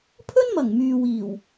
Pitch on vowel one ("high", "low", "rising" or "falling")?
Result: high